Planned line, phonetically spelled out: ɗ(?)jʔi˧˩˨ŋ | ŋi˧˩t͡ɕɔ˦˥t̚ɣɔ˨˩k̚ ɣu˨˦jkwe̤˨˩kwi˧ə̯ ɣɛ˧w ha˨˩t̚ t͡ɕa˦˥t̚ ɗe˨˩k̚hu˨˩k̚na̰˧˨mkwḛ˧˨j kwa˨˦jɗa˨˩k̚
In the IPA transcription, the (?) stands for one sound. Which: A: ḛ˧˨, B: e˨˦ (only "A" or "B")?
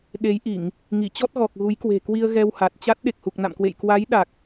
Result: B